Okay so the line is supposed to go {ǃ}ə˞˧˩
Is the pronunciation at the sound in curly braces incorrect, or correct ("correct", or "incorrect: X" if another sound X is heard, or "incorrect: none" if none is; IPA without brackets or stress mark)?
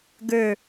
incorrect: ɡ